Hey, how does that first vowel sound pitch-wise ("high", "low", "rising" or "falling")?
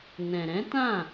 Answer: low